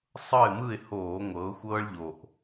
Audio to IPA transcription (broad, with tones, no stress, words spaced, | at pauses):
sˤɤ˥˨ɪ̯mɯ˥˨ɪ̯hoː˧˩˧ ŋʷɤ˩˧ʊ̯ xʷɤː˦ɭʎo˨˩ʔ